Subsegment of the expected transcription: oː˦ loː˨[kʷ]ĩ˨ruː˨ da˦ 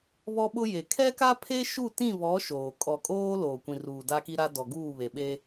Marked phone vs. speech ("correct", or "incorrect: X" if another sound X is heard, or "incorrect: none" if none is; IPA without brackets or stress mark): correct